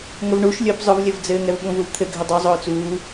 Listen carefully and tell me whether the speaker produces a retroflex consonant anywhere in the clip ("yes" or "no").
yes